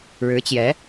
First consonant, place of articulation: retroflex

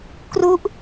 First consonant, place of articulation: velar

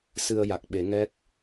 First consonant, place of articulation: alveolar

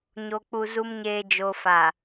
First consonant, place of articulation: palatal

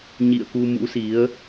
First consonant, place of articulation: palatal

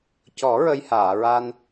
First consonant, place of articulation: palatal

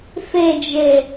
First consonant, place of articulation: labial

